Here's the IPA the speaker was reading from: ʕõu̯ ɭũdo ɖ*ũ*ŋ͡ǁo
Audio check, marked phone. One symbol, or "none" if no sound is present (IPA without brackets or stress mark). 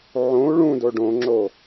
õ